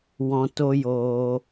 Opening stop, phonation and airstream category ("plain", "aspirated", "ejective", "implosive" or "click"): plain